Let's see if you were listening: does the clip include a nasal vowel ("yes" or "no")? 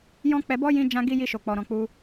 yes